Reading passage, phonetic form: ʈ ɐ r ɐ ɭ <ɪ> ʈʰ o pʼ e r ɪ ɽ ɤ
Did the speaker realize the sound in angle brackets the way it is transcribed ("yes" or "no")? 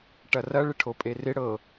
yes